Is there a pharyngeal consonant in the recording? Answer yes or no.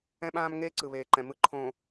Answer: no